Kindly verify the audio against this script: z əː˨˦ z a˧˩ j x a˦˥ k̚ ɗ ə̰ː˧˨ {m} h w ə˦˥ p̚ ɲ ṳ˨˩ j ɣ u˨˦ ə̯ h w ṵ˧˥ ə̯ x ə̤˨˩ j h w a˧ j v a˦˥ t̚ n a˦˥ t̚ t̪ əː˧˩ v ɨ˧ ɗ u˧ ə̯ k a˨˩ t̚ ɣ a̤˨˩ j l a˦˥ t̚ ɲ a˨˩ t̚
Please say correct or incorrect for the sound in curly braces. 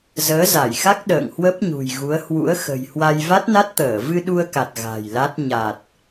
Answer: incorrect